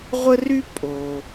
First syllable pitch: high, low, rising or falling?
high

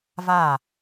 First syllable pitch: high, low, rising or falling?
falling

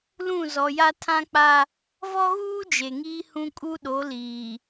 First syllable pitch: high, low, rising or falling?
falling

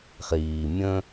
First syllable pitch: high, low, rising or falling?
low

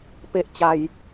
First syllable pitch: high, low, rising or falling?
low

